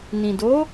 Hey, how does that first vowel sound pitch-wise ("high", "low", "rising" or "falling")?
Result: low